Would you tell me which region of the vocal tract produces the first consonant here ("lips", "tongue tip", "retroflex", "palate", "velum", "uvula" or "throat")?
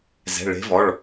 tongue tip